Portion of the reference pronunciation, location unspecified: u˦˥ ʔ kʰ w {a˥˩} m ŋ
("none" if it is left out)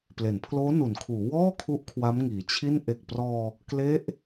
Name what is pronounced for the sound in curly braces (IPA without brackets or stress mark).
a˦˥